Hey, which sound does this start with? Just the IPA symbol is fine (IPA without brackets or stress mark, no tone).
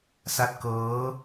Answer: s